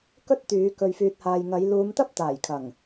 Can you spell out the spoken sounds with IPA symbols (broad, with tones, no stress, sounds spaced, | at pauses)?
k ɵ˥ t̚ t̪ yː˨˧ k ɵ˨ ɥ f yː˨ t̚ h aː˨ j ŋ ɐ˨˧ j l uː˨˧ m t̪ ɐ˥ p̚ t̪ aː˨˩ j kʰ ɐ˨˩ ŋ